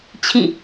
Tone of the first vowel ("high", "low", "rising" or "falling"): falling